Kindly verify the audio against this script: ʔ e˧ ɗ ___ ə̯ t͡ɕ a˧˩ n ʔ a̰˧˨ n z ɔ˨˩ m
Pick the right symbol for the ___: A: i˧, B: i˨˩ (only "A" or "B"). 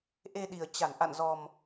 B